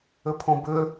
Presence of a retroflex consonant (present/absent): absent